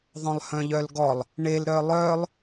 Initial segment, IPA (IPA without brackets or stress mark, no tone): ðˤ